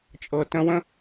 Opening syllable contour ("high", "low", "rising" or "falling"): low